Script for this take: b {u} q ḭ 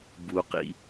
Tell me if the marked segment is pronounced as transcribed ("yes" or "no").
yes